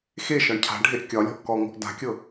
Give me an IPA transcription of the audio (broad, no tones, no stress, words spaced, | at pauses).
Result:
xeʃɒɳ cʰa̤ɖʱeʔ kʲɒlʲɔ̤ʔ kɔŋɔ̤ʔ da̤kʲɤ